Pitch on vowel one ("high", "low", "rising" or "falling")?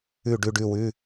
falling